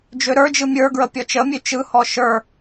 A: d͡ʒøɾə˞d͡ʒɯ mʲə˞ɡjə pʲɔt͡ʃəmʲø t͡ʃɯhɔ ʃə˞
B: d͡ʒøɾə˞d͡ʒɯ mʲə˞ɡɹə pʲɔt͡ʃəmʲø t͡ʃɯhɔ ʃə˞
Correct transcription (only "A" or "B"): B